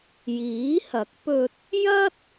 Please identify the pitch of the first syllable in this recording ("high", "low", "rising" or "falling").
rising